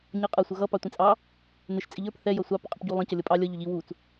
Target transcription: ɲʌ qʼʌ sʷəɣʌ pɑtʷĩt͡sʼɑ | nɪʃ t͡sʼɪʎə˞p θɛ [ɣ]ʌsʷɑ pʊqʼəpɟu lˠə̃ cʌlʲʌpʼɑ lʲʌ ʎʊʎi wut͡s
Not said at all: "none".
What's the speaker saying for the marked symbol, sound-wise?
j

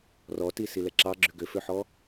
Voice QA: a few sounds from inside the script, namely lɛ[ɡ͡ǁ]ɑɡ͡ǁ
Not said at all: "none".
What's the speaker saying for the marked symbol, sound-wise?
ǁ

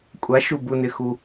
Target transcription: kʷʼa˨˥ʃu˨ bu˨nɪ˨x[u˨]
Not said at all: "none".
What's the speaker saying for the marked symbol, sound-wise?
u˨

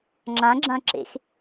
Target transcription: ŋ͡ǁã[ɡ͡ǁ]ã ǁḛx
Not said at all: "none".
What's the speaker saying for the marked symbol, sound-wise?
ɡ͡ǁ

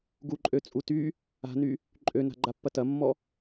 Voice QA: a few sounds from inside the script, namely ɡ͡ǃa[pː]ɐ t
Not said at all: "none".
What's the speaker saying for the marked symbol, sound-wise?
pː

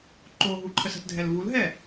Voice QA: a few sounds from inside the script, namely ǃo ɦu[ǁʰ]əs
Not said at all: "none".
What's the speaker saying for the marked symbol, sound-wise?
ǃʰ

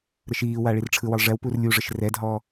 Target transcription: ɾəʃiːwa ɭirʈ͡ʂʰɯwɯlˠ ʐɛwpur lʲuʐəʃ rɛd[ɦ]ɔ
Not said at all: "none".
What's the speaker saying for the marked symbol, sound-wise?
ɦ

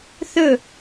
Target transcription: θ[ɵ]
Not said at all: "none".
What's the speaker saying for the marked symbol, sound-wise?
ɵ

